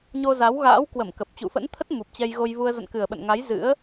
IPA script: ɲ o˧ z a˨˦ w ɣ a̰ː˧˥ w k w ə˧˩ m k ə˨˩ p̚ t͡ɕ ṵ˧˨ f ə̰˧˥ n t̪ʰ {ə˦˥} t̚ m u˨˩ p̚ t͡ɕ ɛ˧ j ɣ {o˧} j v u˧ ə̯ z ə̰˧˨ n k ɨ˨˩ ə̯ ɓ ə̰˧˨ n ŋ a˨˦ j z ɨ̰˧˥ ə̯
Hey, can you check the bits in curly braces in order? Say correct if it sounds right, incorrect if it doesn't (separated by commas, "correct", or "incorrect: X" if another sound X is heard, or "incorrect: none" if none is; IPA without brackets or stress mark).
correct, correct